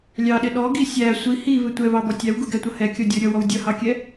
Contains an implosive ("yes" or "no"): yes